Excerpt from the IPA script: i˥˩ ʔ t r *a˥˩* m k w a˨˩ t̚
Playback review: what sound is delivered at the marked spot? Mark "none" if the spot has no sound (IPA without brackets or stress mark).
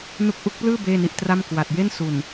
a˥˩